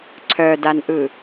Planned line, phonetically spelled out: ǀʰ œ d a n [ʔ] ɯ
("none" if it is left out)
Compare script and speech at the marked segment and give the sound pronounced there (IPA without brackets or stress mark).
ʔ